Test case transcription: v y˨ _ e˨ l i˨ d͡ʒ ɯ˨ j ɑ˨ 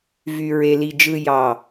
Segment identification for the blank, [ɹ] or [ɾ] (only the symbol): ɹ